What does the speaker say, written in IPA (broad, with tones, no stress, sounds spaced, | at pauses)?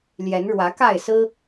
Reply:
l j ɛ˨˦ n ɻ w ä˨˦ k a˥˨ ɪ̯ s ɹ̩˦